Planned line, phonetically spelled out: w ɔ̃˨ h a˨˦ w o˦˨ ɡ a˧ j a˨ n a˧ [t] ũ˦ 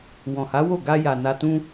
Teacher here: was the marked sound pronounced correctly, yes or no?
yes